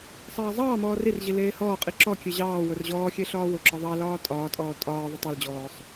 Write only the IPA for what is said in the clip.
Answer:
sˤ ɑː zˤ ɑː m ɔː r i r ʑ i l eː h ɔː qʼ i ǁ ɔ kʲ e ʑ ɑː w ʊ r ʑ ɔː xʲ e ɬ ɒː w ʊ ǁ ɒ ðˤ ɑ l ɒː tʼ ɒː tʼ ɔː tʼ ɒː ðˤ ʊ tˤ e l d͡ʑ ɔː sˤ

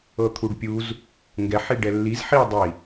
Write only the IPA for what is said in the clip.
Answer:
ɤ t̪ʰ u ɖ pʲ u z | ŋ ɡ ɛ ħ i ɖ ɛ lː i z ħ i dˤ i

